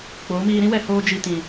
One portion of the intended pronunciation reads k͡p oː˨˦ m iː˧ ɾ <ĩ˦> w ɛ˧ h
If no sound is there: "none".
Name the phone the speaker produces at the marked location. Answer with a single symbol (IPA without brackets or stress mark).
ĩ˦